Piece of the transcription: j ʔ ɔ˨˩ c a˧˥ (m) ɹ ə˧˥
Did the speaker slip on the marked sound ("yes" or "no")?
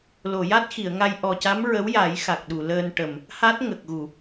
no